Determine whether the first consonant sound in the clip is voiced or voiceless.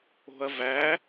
voiced